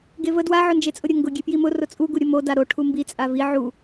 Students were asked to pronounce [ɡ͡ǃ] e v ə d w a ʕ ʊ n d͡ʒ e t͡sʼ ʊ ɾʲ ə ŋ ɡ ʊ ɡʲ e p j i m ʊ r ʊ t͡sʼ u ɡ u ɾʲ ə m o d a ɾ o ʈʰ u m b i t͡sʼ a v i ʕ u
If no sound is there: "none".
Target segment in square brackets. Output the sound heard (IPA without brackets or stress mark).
ɡ